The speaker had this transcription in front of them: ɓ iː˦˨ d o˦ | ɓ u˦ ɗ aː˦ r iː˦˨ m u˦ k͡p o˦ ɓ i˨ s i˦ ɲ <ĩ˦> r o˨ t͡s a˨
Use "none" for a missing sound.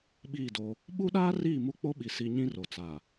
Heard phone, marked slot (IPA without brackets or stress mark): ĩ˦